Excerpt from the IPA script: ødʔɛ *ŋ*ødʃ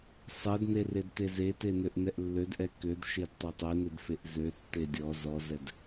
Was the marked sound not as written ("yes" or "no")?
yes